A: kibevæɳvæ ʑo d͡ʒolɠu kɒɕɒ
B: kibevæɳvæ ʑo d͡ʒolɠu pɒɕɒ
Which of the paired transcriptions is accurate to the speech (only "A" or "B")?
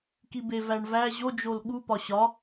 B